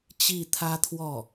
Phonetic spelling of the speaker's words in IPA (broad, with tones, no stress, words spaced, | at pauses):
t͡ɕi˥˩t̪ʰä˥t̪ʰwɔ˥˩